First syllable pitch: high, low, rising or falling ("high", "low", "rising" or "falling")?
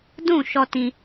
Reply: falling